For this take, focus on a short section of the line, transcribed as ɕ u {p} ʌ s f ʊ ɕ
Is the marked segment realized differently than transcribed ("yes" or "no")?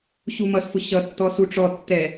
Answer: yes